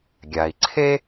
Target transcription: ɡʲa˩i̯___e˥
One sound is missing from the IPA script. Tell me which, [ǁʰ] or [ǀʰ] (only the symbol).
ǀʰ